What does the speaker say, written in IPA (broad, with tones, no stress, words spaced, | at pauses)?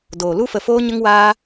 doː˨lu˦fə˧ foː˦ɲə˦ŋ waː˦